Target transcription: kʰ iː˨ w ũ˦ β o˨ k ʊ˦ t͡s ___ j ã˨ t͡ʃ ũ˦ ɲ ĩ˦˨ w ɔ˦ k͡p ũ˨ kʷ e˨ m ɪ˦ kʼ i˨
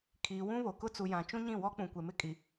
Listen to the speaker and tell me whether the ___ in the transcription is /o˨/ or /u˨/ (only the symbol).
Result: u˨